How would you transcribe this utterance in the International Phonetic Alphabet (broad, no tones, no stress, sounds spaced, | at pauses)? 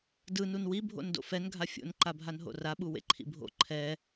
d ɯ n u n w i bʱ o̰ n d o̰ f ɛ n ɡʱ a fʲ o̰ n ǃ a bʱ a n ɦ o̰ r a ɓ u w ḛ ǃʰ ḭ bʱ o̰ ǃʰ ɛ